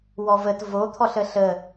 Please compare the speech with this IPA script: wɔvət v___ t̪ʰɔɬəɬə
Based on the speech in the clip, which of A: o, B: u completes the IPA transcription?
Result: A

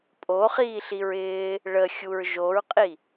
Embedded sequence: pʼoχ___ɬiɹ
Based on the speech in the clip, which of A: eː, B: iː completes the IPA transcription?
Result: B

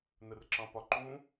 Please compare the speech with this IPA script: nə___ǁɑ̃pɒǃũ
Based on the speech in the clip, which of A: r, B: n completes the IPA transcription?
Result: A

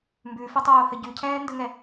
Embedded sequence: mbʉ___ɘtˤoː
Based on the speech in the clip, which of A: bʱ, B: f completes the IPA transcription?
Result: B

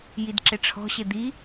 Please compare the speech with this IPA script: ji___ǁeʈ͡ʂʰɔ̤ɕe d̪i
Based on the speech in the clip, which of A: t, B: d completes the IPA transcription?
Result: B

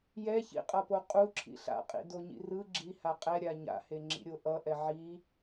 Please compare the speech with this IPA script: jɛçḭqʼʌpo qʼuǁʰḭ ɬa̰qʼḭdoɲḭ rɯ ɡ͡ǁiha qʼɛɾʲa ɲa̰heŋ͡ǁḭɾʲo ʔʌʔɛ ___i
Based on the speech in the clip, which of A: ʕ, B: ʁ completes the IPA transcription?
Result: A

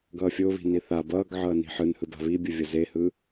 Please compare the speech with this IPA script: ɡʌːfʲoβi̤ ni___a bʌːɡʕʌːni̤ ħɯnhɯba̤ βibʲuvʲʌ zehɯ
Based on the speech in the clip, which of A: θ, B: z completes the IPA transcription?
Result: A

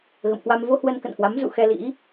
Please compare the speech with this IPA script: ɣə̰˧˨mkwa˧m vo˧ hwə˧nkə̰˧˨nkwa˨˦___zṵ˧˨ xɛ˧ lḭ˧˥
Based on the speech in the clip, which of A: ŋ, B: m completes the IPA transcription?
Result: B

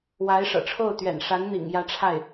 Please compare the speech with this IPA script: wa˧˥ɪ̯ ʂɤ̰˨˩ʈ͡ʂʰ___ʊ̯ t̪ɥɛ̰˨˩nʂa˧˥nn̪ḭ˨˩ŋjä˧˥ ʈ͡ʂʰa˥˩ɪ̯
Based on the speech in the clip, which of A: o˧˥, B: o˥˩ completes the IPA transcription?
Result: B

